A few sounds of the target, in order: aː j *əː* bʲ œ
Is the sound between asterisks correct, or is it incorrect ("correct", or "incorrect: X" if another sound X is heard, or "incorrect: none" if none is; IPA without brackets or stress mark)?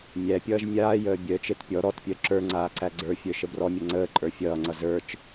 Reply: correct